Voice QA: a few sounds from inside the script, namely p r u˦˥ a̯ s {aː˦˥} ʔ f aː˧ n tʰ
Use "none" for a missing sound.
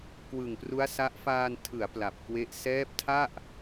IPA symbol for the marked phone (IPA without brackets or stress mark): a˦˥